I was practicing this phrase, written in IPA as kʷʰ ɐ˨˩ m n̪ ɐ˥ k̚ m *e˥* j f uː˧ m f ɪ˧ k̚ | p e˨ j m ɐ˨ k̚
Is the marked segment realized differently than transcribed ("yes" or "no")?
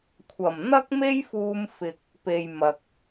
no